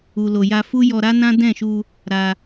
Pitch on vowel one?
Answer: low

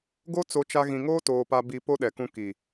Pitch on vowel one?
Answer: high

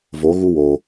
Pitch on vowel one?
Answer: rising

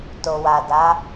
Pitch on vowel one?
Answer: low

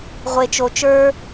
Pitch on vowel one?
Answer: low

